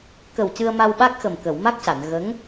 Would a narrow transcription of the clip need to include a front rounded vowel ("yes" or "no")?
no